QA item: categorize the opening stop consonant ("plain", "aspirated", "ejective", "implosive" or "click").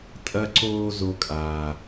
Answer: ejective